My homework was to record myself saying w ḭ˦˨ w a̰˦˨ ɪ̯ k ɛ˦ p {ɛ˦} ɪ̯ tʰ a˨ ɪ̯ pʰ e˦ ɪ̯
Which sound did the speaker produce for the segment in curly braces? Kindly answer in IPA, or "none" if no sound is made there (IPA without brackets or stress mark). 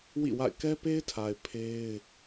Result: e˦